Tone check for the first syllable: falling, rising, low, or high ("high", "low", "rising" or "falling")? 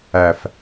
low